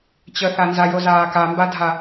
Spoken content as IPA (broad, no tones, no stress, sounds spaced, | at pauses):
t͡ɕ ə θ a n z a j o z aː k a m b a dʱ a